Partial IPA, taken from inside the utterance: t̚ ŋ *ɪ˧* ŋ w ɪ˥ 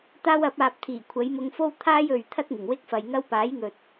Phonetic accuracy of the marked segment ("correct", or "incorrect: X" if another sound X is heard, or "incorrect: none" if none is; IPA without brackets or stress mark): incorrect: ɪ˨˩